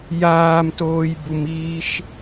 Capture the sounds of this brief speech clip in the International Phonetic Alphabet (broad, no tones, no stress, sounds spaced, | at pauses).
j aː m t oː j b u m iː ʃ